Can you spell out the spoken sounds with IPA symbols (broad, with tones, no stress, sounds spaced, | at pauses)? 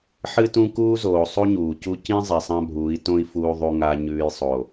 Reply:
ħ ɨ˦ t ũ˦ k uː˦ z oː˨ sˤ u˦ ɲ uː˨ c u˦ c ĩ˦ zˤ i˨ sˤ ã˦ bʱ uː˨˦ i̯ t õ˦ i̯ f uː˨ ðˤ u˨ ŋ a˨ ɲ ʉː˨ j sˤ o˨